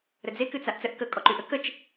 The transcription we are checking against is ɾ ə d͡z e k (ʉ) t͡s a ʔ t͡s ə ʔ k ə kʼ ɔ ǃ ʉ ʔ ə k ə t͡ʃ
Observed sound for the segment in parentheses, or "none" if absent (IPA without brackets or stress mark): ɨ